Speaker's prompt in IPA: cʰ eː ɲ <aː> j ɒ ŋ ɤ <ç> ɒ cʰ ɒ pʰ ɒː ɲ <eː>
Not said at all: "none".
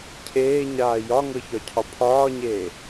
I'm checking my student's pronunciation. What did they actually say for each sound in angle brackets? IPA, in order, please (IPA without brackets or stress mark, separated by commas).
aː, ç, eː